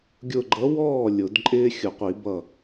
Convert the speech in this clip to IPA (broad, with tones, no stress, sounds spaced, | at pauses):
ɡʲ ʊ˧˩ ɡ͡ǃ ʌ˨˥ w ɔː˥˩ lʲ ʊ˨˩˦ d ǃʼ ɪː˦ xʲ ʊ˨˩˦ qʷ i˨˩˦ b ʌ˧˩